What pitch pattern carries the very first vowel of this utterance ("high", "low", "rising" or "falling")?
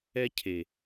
high